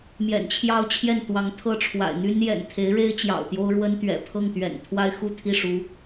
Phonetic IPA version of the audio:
m j ɛ̰˨˩ n t͡ɕʰ j ɑ˥˧ ʊ̯ t͡ɕʰ j ɛ˥˩ n t̪ w ɑ˧˥ ŋ t̪ʰ ɤ˥˩ ʈ͡ʂʰ w a̰˨˩ ɪ̯ n̪ y˥ n j ɛ̰˨˩ n t̪ʰ e˧˥ ɪ̯ ɻ e˥ ɪ̯ t͡ɕ j ɑ̰˨˩ ʊ̯ t̪ j o˥ ʊ̯ ɻ w ə˥ n t̪ ɥ ɛ̰˨˩ pʰ ɤ˥˩ ŋ t̪ ɥ ɛ̰˨˩ n t̪ʰ w a˥ ɪ̯ x u˥˧ t̪ʰ i˥˩ ʂ u˧˥

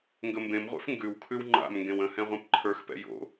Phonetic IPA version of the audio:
ŋ ɡ ə m b ẽ m ʁʷ ɛ̰ f ŋ ɡ ʉ w kʰ ʉ w ŋ͡ǃ a̰ m ŋ ɡ ẽ w ə̃ h ɛ̃ ʁʷ ɛ̃ p ǃʰ ə˞ x p ɛ̰ j o̰

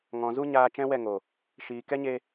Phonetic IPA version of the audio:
ŋ ɔ̃˨ z u˦ ɲ aː˧ t͡ʃ ɛ̃˦ w ɛ˦˨ ŋ o˨ | ʃ iː˨ k ɛ˦ ɲ e˧

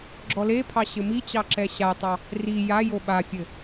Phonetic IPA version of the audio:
ɡ͡ǁ ɔ l e pʰ ɑ ɕ ɘ m i t͡ɕ ɑ ǁ ɛ ɕ a tˤ ɑ | r i j a j o ɓ a fʲ ɘ

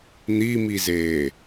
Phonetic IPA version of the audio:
n̪ i m i z eː

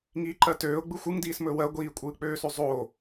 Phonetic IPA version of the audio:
ŋ iː ǃ ɜ t øː ʊ̯ ɡ͡b ɯ xʷ ɯ ŋ d iː s m ɵː w ɜ ɡʷ iː kʷʼ ɯː k͡p øː s ø zˤ o

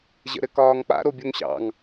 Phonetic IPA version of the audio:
ʑ ə̰ ɾ ɘ k ɒː ŋ k͡p a̰ ɾ o bʲ o ŋ ɕ ɑ̰ ŋ

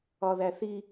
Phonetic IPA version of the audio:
ɒ ð æ θ i

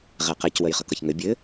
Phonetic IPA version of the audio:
ʁ ɛ q ɛ c w ə j χ ʌ k ʌ ç ŋ ɘ bʲ ɘ

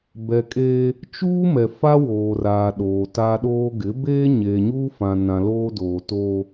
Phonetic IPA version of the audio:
b ɛ˨ kʼ eː˦ | t͡ʃ uː˦ m ɛ˨ f a˦ w oː˨ r aː˨ ɗ oː˨ t a˦ ɗ oː˦ ɡ ɪ˨˦ b eː˦ ɲ eː˨ ɲ uː˦ f ã˨ n ã˨ l oː˦ d oː˨ t oː˦

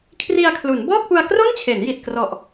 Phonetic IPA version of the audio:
kʰ r i˧ a̯ kʰ l u˩˦ n b ɔː˥˩ k̚ p u˧ a̯ k r o˥˩ n t͡ɕʰ e˩˦ n j i˨˩ t̚ k r ɔ˨˩ ʔ

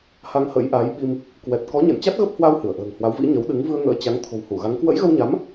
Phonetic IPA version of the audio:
h a˧ ŋ h ə̰˧˥ j ʔ a˨˦ j ɓ i˧ m | k w ɛ˨˩ t̚ k ɔ˨˦ ɲ ɛ̰˧˨ n t͡ɕ a˦˥ t̚ ɣ ə˦˥ p̚ h w a˧ w h ɨ˧˩ ə̯ ʔ ə̤ː˨˩ ŋ h w a˨˦ w v ḭ˧˥ ɲ ə˨˦ w ɗ ɨ˨˦ ŋ v ɨ˧ ə̯ ŋ ə̰ː˧˥ t͡ɕ a˨˦ ŋ t̪ʰ o̤˨˩ w h u˧˩ ɣ a˨˦ ŋ k w ə̰˧˥ j ɣ ə˧ w ɲ a˨˦ m

